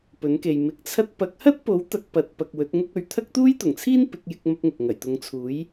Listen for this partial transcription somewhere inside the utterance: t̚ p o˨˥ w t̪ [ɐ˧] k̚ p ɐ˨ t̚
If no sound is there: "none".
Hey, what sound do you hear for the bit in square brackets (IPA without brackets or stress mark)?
ɐ˨˥